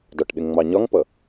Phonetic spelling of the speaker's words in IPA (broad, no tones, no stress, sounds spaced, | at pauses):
d ɒ ʈ ɗ ɪ ŋ ŋ͡m ɑ ɲ ɒ ŋ p ʌ